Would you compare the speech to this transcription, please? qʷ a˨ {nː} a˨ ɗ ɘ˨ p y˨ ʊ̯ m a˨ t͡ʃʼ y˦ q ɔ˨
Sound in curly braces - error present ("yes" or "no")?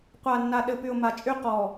no